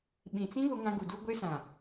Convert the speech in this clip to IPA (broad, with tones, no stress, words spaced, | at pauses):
ɓĩ˨t͡sĩ˦ βʊ˦ŋã˦ɡu˨du˦ ɡʷe˦sã˨